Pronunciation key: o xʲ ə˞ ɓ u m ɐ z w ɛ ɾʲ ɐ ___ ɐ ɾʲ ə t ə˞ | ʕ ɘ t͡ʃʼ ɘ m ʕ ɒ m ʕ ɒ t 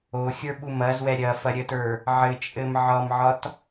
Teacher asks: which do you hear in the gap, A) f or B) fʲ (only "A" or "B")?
A